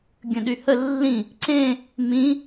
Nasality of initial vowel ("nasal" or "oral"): nasal